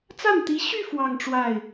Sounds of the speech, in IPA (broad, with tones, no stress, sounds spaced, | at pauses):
t͡s a˥˩ n t̪ i˧˥ ɕ y˥˧ f w ɑ˥˧ ŋ ʈ͡ʂ w a˥˩ ɪ̯